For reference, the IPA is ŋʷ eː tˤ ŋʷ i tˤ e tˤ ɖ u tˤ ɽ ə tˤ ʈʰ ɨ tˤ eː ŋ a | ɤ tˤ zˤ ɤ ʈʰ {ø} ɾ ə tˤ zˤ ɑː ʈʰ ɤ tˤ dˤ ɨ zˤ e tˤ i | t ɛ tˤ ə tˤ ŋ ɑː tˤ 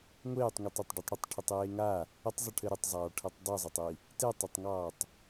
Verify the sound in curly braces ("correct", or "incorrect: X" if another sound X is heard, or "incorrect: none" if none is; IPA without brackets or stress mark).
incorrect: ɘ